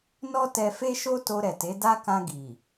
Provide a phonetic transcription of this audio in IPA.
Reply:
nɔ˦ tɛ˧fe˦ʃo˦ to˧ɾɛ˨te˨˦da˦ kã˧ɡi˨

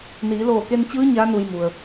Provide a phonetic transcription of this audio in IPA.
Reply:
niː˩˧loː˧˩ke˧nt͡ɕɯː˧˥ ɲaː˧˥ nu˧jmu˩ə̯

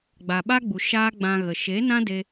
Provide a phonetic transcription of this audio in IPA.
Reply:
ɡ͡ba˨ɓa˦ɡ͡bu˨ ʃaː˦ɡ͡bã˧ɣə˨ ʃe˨˦nã˦ de˧

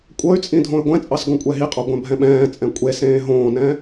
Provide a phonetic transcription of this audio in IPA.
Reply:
kʷʼɤy̯t͡sʼĩ dʱõy̯ɡʷɛ̃t͡sʼɑs ɡõkʷʼɛɦiqʼɑ ɡʷɛ̃bʱɛ̃ɓɛ̃ːt͡sʼɛ̃ kʷʼesẽː ɦõːnɛ̃

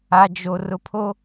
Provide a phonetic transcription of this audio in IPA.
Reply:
a˨d͡ʒo˨ rʊ˨pʰo˦

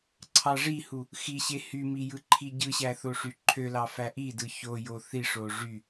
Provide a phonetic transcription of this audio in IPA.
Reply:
ǀʰɑʐihu | xiɕe hymi jɯǃʰiɟɯɕæ θoʂyǃʰølɑ fæʔidɯ ço joθiʂo ʐy

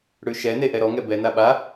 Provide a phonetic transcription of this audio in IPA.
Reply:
ɽʉʃɛne ʔɛɾɔŋɛ bɛna ɓa

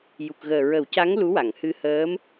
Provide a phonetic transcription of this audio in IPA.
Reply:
ju˨˩k̚ɣəː˨˩ ɹə˨˩˦wca˧˥ŋ lu˧˥wa˨˩˨ŋhɨ˧ həː˧˥m

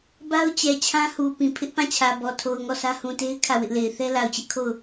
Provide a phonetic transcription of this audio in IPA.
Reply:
ba˦ʊ̯t͡ɕɛ˨ t͡ɕʰã˦hu˨ pĩ˨ pʰɪ˦ʔpã˦˨t͡ɕʰä˨bɔ˨ tʰo˨ʊ̯ ŋɔ˦˨sʰä˦ hũ˨te˦ɪ̯ kʰä˦˨wɪ˦ʔle˨ɪ̯ θɛ˦la˨ʊ̯t͡ɕɪ˦ʔkʰo˦˨ʊ̯

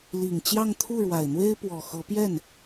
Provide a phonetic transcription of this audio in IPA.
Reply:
li˨˩ŋ t͡ɕjɑ˥˧ŋt̪ʰu˥˩ɻwa˨˩ɪ̯n̪we˥ɪ̯ pwɔ˨˩xɤ˧˥ pjɛ˥˩n

